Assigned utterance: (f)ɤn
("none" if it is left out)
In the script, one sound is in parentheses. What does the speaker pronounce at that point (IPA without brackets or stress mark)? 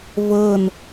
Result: v